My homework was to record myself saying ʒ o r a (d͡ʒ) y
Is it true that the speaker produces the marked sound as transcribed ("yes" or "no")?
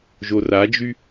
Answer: yes